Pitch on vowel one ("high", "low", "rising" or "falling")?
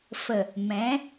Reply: low